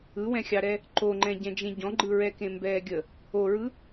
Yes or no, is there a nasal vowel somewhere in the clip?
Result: yes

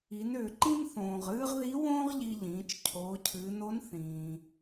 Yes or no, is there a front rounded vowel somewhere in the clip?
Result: yes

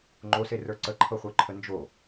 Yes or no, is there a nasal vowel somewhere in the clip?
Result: no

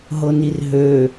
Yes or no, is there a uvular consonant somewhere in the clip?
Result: no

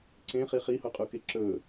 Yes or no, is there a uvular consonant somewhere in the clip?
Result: yes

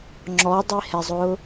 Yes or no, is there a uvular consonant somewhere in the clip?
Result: no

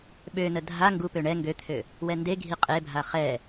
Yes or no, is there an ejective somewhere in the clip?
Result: yes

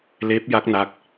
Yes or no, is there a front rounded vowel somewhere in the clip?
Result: no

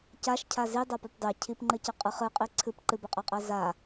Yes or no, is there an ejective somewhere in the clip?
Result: yes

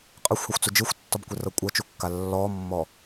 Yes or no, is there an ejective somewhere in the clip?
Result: yes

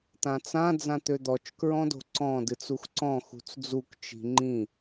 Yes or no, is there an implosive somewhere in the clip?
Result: no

